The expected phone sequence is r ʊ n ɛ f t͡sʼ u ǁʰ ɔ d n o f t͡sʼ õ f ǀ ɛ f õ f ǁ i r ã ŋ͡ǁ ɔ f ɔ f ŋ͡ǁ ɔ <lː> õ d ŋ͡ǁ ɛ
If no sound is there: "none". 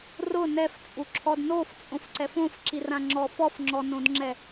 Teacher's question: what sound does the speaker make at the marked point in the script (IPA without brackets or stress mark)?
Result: n